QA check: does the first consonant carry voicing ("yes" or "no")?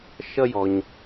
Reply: no